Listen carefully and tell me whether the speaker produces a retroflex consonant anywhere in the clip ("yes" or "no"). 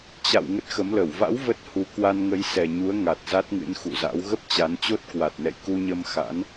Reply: no